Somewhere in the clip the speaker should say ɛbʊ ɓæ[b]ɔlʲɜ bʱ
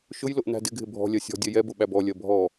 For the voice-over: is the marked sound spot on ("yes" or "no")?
yes